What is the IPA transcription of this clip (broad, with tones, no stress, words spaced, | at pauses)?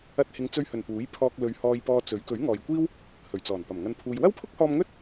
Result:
ɐ˧t̚hɪ˨˧ŋt͡sɵ˧ɥhɵ˨˩n puː˨˥jpʰɔː˧k̚ lɵ˨˧ɥhɔː˧jpɔː˧t͡sɵ˨˥ɥ kɵ˨˥ɥŋɔː˨jkʷiː˥w | hɵ˨˩ɥt͡sɔː˨˩npɐ˨˩m ŋɐ˨npʰuː˨j wɐ˥wpʰʊ˥k̚hɔː˧m ŋɵ˥t̚